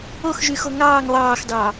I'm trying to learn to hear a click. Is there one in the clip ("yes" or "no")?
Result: no